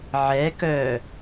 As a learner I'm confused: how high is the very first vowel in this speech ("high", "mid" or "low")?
mid